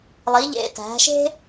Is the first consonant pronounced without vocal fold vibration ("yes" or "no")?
no